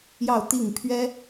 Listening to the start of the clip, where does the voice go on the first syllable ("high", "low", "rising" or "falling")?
falling